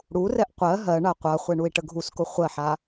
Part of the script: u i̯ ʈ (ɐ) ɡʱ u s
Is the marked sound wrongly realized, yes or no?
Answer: yes